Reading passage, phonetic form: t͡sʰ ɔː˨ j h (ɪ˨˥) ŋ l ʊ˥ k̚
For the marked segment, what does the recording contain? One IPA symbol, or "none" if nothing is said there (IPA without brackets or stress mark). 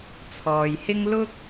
ɪ˥